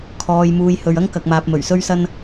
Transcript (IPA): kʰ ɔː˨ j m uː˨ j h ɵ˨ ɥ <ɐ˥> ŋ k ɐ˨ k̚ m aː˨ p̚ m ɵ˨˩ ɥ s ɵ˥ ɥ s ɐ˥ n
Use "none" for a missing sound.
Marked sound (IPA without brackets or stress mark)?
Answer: ɐ˥